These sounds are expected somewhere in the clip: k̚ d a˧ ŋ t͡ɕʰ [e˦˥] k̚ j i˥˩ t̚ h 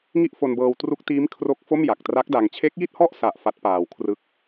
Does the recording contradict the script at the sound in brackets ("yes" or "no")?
no